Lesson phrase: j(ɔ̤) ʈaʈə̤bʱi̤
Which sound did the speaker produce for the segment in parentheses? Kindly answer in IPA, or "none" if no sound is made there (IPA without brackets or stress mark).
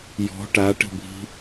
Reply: ɔ̤